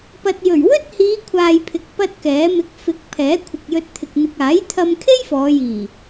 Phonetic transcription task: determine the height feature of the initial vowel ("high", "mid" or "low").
low